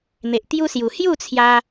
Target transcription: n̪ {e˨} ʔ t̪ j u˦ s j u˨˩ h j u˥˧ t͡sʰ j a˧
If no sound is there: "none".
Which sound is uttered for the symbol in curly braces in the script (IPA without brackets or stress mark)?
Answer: e˨